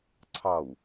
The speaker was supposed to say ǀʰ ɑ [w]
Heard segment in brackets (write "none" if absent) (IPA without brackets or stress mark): w